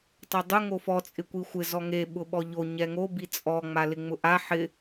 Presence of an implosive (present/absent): present